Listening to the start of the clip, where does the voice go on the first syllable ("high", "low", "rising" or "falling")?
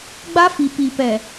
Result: high